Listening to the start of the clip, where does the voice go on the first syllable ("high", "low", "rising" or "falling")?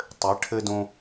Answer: rising